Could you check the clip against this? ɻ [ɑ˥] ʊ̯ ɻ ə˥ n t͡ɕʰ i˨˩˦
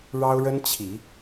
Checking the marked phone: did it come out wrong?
no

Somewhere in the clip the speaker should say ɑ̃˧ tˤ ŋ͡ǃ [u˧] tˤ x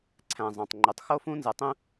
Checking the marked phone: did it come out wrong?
no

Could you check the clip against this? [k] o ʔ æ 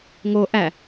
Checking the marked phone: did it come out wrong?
yes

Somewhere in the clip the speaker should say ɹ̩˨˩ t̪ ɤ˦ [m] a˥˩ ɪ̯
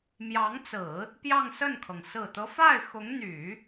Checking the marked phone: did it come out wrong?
yes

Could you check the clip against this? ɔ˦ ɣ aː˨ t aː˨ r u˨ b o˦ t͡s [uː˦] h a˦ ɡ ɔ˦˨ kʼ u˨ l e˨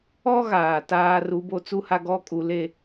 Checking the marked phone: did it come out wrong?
yes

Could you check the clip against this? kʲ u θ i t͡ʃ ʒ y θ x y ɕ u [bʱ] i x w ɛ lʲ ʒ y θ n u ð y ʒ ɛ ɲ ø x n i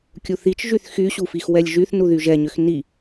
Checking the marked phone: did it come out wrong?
yes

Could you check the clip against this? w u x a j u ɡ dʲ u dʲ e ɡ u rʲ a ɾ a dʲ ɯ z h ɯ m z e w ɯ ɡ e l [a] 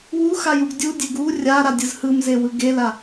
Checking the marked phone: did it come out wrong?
no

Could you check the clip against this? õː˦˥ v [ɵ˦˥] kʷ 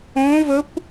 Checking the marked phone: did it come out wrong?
no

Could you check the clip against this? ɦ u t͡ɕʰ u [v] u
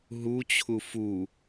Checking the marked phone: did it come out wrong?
yes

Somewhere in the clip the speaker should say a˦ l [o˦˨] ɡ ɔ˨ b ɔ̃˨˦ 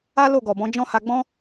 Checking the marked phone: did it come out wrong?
no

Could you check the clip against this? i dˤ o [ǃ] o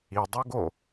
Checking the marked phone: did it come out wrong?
yes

